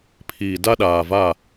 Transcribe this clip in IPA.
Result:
pʰ i˨ d a˦ ɗ aː˨ v a˦˨

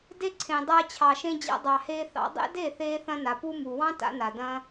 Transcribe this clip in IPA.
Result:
d e˧ ǀʰ ẽ˨ dˤ aː˧ t͡ɕʰ ɑ˨ ʃ ẽ˧ d͡ʑ a̰˧ dˤ ɑ˨ h eː˧ θ ɑ̰˧ dˤ ḛ˦ d e˦˨ θ eː˧ θ ɐ̃˧ n a˨ p u˧ m u˨ w ɑ̃˦ t a̰˧ n a˨ d ɐ̃˧

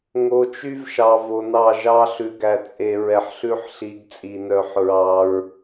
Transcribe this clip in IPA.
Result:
ŋ o˨ t͡ʃ y˦ v ʃ ɑ˨ v o˨ n ɑ˦˨ ʒ ɑ˦ ɬ ʉ˨ ɡ æ˨ t͡sʼ e˨ ɹ ɛ˨ ħ ɬ ʉ˦ ħ ɬ i˨˦ ɡ t͡sʼ i˨ n œ˨˦ ħ ɹ ɑ˦ ɹ

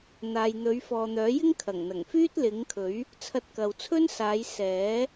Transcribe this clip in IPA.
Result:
n̪ aː˨ j n̪ ɵ˨˧ ɥ f ɔː˨ n̪ œː˨˥ j ɪ˥ ŋ kʰ ɐ˨˩ ŋ n̪ ɐ˨˩ ŋ f yː˥ t̚ l ɪ˨˥ ŋ kʰ ɵ˨˥ ɥ | t͡sʰ ɐ˧ t̚ k ɐ˨ w t͡sʰ ɵ˥ n s aː˨˧ j s ɛː˨˥

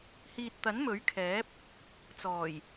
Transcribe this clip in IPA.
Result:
h iː˨ t̚ t̪ ɐ˨˥ n m ɵ˨˥ ɥ kʰ ɛː˨˥ p̚ | t͡s ɔː˨˩ j

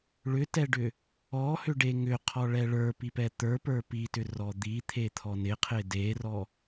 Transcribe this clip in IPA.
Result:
ɭ ʏ t ɛ ɖ ʏ | ɔ h ʏ ɖ e ŋ ʏ qʰ ɔ ɭ ɛ ɭ ə˞ p i p ɛ t̪ ə˞ p ə˞ p i t ʏ r ɔ d̪ i t̪ʰ e t̪ʰ ɔ n ɪ qʰ ɪ d e r ɔ

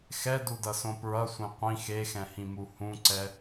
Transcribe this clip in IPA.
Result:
x ɛ d u d ʌ s õ p ɹ ʌ sʷ ẽ qʷ ĩ x e x ɛ̃ h ĩ m u h ũ ǀ ɛ

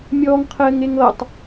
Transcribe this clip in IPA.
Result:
mʲ ɔː ŋ qʰ ɘː ŋ e ŋ ɤ tˤ

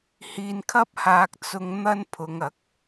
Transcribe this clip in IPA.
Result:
h iː˧ n kʰ ɐ˥ p̚ h aː˧ k̚ t͡s ʊ˧ ŋ n̪ ɐ˥ n pʰ ʊ˨˧ ŋ ɐ˨˥ k̚

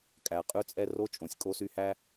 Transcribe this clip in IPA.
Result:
kʼ æ˨ qʼ ʉ˦ t͡sʼ ɛ˦ r o˥ t͡ʃʼ õ˨ sʲ kʼ o˦ s y˦ h æ˥

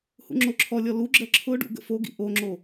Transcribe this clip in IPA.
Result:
h ṵ ŋ͡ǁ o ǁʰ ɔ lʲ ɔ l u ɡ͡ǁ ɜ ǁʰ ʊ ɖ ṵ ɡ ə̰ f o ɡ ḭ ʔ o ŋ͡ǁ o

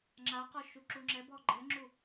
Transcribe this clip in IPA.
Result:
ŋ͡ǁ a q ɔ ʃ u ǁ u ŋ͡ǁ ɛ b ɔ ɡ͡ǃ ɛ ŋ͡ǁ u

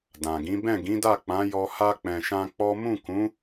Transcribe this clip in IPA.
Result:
d ã˨ ɡ ĩ˨˦ b ɛ̃˦˨ ɡ ĩ˨˦ d a˦˨ k͡p ã˨˦ j ɔ˧ h a˧ k͡p ɛ̃˨ ʃ ã˧ k͡p ɔ˦ m ũ˦˨ k ũ˨˦

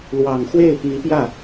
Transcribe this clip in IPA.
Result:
l w ɑ˨˩ ŋ x w e˥˩ ɪ̯ p i˧˥ p j ä˥˩

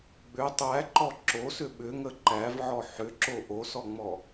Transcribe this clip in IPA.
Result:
ɡ͡b ʏ tˤ æ ǃ ɔ ǁ o s ʏ ɓ ʏ ŋ ə ǃ æ v ʕ ɔ ħ ʏ ǁ o ʔ o s ɔ ŋ͡m ɔ

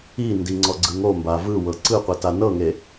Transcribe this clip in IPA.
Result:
i n d i ŋ͡ǀ ɔ ɡ͡ǀ ɯ ŋ o m b a v ɯ w ɤ ǀ ɯ qʷ i t a n ɤ ŋ e

